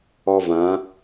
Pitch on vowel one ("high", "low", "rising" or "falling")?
high